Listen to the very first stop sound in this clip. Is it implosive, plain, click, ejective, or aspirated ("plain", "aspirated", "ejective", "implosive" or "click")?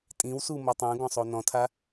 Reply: ejective